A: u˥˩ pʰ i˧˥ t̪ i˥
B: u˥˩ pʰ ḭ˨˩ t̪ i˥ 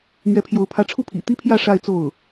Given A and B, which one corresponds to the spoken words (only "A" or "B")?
B